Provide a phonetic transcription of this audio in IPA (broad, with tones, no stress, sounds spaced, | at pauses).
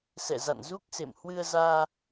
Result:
s ɛ̰˧˨ z a̰˧˨ n z u˦˥ k̚ s ḛ˧˨ m h w ɨ˧ ə̯ z aː˧